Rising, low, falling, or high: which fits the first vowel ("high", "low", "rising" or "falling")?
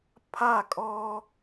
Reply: falling